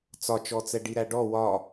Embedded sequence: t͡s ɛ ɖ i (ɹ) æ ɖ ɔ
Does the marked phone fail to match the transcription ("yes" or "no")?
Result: yes